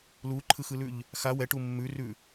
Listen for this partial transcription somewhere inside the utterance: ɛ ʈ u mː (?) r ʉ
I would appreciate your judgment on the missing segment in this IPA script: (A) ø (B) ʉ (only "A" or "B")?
B